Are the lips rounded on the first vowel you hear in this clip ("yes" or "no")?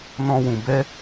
yes